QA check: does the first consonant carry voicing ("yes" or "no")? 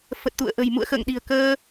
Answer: no